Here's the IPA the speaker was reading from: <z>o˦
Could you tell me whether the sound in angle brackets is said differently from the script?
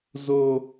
no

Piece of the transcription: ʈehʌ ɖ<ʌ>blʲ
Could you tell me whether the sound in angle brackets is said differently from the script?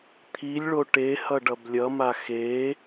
no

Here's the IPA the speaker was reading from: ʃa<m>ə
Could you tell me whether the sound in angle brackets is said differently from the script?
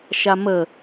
no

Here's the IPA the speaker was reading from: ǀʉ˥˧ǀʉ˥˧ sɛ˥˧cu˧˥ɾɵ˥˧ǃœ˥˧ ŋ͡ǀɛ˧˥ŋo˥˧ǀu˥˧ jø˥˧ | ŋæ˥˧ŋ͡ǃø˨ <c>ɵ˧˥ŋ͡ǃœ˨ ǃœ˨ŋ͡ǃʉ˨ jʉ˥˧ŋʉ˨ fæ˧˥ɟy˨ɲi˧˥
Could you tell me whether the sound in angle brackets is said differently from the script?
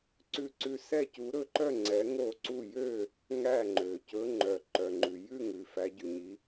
no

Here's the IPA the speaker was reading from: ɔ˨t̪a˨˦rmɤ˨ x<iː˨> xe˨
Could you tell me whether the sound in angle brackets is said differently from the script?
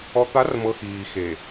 no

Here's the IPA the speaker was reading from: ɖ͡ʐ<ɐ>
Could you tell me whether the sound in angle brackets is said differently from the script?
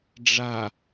yes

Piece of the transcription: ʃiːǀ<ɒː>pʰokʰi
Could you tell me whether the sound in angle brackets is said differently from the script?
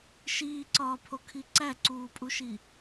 no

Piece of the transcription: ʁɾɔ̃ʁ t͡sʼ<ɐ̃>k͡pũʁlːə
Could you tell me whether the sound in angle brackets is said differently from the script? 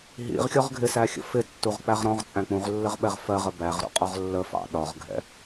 yes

